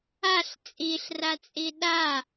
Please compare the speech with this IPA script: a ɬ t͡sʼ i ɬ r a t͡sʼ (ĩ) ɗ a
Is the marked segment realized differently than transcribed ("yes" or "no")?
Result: yes